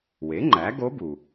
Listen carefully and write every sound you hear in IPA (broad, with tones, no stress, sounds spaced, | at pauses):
w e˩˥ ŋ͡ǃ æ˩˥ ɡ o˧˥ b u˩